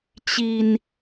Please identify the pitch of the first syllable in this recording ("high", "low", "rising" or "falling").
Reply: low